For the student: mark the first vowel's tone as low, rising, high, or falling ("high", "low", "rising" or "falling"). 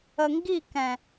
low